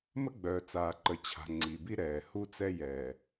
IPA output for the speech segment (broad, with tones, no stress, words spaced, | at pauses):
mə˦ɡ͡bœː˨t͡saː˨ǃə˨ t͡ɕʰa̤˨ ŋ͡ǀi˨bi˦ ɾɛː˨ hu˦t͡sɛ˦ jɛː˨